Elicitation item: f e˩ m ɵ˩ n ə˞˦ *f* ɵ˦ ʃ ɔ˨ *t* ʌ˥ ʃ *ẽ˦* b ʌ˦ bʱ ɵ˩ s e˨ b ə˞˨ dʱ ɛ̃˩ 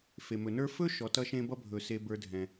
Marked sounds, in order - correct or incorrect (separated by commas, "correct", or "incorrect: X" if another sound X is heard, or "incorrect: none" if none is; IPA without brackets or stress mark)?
correct, correct, incorrect: ẽ˥